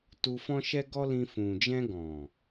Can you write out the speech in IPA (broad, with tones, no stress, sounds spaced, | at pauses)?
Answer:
t u˧ f ɔ̃˦ ʃ ɛ˦ ɡ ɔ˦ l ĩ˧ f ũ˨ d͡ʒ ɛ̃˧ ɡ ɔ̃˨